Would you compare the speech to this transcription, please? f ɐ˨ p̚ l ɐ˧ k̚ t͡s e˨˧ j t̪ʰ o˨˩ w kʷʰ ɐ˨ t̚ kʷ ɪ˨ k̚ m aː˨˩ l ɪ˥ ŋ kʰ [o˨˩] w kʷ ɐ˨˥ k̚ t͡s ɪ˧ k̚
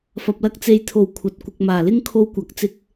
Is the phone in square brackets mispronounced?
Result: yes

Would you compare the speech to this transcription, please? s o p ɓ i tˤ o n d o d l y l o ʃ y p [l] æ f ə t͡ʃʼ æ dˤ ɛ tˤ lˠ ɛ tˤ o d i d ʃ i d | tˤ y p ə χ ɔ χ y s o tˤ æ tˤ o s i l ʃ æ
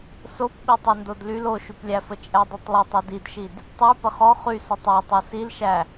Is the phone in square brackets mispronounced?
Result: yes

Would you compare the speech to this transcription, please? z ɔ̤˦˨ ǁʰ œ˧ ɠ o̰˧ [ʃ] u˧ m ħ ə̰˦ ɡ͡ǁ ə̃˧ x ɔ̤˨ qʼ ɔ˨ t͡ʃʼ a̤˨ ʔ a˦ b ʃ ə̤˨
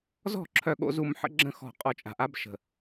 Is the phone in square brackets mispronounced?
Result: yes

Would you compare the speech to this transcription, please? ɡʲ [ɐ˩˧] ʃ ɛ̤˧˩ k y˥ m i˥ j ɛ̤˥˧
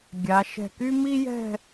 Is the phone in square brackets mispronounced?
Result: yes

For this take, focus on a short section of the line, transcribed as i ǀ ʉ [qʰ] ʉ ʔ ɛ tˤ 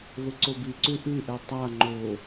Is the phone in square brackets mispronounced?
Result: yes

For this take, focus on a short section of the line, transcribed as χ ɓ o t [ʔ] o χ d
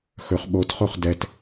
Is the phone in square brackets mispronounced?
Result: yes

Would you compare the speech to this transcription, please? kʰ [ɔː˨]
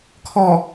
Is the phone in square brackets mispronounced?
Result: no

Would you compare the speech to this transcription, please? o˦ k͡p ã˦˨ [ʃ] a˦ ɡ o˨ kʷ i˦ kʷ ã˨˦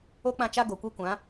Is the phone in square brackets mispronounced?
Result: yes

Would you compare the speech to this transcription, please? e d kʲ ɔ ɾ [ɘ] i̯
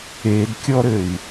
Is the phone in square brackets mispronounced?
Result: no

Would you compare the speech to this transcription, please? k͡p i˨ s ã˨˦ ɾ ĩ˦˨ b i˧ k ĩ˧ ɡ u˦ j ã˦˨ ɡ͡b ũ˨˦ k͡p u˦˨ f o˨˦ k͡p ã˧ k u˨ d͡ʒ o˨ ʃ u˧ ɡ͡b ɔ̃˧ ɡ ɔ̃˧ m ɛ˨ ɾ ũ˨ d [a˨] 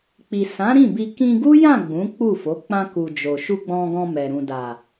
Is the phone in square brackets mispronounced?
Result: no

